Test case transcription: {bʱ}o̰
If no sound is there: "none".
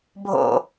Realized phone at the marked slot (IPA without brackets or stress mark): bʱ